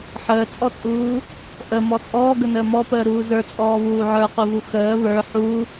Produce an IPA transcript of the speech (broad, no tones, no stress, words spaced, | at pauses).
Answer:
ħəːt͡sʼɔt͡sʼuː | ʔəmɔ t͡sʼɔːɡənəː mɔpəːɾuː zə˞t͡sʼɔːβuː ʕə˞quvu xəː βə˞ ħu